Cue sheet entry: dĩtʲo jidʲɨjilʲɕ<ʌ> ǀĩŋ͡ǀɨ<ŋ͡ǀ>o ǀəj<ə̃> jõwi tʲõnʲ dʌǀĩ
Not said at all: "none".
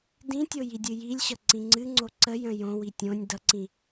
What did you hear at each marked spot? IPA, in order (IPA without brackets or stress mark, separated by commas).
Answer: ʌ, ŋ͡ǀ, ə̃